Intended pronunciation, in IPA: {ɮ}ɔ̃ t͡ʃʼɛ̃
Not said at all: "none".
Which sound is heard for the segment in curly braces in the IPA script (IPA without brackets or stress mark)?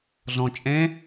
ɮ